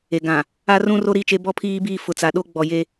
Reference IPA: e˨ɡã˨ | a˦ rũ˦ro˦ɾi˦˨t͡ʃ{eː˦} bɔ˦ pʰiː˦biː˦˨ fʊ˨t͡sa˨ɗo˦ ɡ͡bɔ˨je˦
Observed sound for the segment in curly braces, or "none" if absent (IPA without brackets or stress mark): e˦